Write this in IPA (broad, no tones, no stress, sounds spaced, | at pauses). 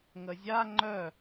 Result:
ŋ ə zʲ a ŋ͡ǃ œ